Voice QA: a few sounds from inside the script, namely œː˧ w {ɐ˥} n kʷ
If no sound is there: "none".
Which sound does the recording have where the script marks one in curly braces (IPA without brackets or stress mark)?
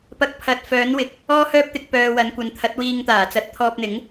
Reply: ɐ˨˥